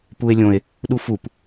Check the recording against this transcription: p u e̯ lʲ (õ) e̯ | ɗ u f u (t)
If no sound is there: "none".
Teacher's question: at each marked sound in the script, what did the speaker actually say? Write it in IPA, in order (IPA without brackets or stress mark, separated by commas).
õ, p